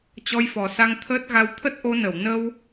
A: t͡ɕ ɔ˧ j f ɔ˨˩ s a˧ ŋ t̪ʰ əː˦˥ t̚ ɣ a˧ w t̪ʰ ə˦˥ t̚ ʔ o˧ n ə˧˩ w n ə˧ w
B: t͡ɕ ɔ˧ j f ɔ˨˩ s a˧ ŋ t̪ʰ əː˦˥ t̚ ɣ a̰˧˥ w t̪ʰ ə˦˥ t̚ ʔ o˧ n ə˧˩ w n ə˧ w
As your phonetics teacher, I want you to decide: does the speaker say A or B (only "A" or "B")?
A